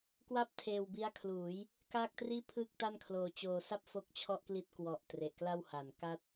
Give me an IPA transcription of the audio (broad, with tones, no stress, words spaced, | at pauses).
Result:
kwa˥˩p̚ tʰeː˧wbi˦˥a̯kʰluː˩˦j | kaː˥˩k̚triː˥˩ pʰɯː˥˩k̚ta˥˩nkʰloː˧ t͡ɕoː˧sa˥˩p̚ fo˦˥k̚ t͡ɕʰɔ˥˩ʔkli˥˩t̚ kwɔ˨˩ʔ tre˨˩ʔkla˥˩w ha˨˩n ka˥˩t̚